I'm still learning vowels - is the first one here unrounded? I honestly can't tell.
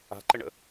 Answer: yes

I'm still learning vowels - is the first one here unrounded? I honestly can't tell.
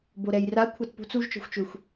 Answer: no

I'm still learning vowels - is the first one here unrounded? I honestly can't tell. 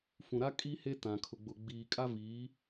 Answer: no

